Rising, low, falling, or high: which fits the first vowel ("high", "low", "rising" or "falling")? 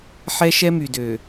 high